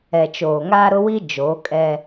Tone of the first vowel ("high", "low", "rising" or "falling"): low